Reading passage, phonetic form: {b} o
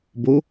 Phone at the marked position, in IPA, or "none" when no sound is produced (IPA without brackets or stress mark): b